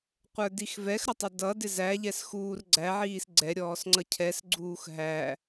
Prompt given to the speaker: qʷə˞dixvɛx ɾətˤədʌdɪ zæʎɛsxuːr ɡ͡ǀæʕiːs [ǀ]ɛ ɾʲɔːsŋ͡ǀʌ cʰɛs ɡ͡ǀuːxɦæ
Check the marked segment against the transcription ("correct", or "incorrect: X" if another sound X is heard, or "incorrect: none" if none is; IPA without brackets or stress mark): incorrect: ɡ͡ǀ